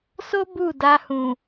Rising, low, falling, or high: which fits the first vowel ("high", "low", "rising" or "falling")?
high